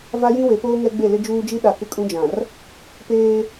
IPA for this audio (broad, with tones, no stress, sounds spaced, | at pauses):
v a˦ j ĩ˦ w e˨˦ p oː˦ ŋ ɛ˦ ɡ͡b e˦˨ l ɪ˦ d͡ʒ uː˦ d͡ʒ i˦ ɗ a˨ k ɪ˦ kʼ ũ˦ d͡ʒ ã˨ r | p eː˦